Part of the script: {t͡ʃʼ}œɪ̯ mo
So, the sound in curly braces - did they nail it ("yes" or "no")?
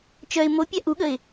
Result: no